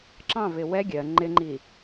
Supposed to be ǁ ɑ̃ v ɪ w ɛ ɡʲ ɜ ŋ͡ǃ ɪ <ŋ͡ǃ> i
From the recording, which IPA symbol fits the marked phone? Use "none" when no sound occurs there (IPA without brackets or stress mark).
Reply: ŋ͡ǃ